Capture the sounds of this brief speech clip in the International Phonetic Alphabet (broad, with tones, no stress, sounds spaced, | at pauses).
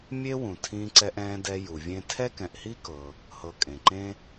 mʲ e˥ w ũ˩ tʰ ĩː˨ ǀ ɛ˨ ʔ ɛ̃ː˨ d ɛ˨ j u˩ vʲ ẽ˦ tʰ ɛ˥ k ɛ̃˨ ʔ h i˥ k ɤ˨ | h ɤ˨ kʼ ẽ˩ ǃ ẽ˥